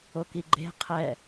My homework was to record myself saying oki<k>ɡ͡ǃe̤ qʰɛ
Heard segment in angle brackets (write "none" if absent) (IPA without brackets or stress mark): none